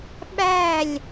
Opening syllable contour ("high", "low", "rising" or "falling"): falling